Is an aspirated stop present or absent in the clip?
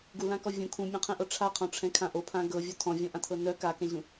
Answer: present